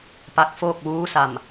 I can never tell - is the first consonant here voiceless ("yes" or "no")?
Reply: yes